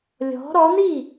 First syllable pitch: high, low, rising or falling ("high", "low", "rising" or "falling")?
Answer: rising